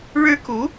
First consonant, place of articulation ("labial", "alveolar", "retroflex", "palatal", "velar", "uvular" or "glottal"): retroflex